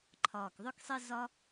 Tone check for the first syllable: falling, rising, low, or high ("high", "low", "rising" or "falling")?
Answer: low